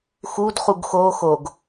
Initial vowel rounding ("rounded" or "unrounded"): rounded